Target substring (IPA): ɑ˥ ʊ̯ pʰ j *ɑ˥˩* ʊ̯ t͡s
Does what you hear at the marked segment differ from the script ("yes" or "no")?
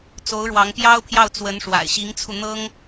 no